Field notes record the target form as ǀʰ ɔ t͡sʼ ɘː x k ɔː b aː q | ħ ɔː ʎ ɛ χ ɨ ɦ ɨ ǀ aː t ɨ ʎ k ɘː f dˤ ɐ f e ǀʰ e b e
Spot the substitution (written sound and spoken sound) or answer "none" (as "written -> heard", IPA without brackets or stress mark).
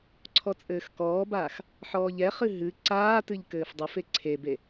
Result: q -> x